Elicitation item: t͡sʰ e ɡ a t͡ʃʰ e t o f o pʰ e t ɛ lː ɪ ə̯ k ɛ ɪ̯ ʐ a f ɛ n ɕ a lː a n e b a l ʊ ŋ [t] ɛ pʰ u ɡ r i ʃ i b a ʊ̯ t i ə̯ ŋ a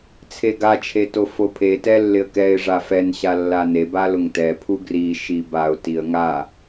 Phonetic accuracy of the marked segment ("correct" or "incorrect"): correct